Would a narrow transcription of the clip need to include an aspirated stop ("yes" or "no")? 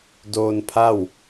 yes